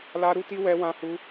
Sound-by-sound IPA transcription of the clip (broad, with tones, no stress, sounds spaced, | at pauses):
l a˦ ɾ u˦ t i˦ w ɛ˦ w ã˦ h u˦